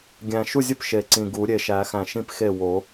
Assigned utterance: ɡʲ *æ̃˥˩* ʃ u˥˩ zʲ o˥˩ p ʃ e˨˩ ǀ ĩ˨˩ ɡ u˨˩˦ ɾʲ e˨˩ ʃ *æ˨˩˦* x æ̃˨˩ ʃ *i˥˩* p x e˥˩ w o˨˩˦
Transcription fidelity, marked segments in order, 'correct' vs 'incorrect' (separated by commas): incorrect, correct, incorrect